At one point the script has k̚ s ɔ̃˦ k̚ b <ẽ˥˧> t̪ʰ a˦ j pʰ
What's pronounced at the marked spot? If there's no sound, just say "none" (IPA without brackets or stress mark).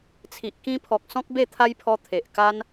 e˥˧